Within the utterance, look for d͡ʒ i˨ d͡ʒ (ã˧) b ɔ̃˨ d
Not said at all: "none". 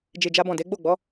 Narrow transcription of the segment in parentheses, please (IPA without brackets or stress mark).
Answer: a˧